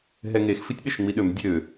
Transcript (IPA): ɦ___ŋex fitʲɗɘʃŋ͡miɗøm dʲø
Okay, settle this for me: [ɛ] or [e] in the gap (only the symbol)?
ɛ